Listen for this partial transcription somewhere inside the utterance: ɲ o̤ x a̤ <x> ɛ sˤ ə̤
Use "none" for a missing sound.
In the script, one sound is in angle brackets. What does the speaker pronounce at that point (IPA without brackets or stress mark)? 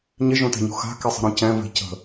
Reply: k